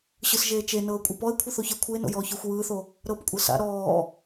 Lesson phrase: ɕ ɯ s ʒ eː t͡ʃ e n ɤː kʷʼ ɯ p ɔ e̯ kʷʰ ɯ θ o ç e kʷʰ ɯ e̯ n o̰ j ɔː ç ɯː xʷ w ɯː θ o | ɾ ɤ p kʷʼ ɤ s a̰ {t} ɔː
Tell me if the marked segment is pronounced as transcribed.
no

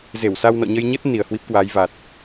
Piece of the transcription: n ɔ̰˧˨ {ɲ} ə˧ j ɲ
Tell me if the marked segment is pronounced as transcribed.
yes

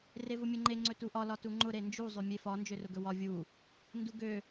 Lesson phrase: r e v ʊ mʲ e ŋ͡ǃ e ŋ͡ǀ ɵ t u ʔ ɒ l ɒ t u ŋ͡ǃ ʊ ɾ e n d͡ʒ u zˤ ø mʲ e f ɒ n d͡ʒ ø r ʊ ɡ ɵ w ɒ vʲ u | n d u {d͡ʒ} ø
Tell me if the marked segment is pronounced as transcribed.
no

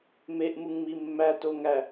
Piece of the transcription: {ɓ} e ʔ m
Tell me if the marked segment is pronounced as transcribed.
no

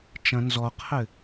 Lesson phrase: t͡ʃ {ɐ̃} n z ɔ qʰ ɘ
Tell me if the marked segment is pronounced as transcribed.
yes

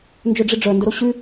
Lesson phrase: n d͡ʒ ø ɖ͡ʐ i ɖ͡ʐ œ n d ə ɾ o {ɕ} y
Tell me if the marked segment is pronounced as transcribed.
yes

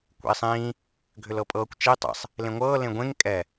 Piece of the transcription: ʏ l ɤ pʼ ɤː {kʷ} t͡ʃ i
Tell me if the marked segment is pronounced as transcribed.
yes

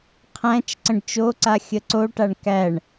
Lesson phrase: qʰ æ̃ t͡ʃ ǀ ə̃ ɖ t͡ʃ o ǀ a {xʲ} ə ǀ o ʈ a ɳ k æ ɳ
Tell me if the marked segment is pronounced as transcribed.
yes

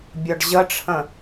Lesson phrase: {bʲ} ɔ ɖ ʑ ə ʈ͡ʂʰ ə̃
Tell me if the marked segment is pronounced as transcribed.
yes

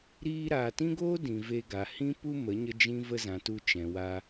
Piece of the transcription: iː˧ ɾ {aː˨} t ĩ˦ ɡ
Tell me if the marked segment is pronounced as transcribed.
yes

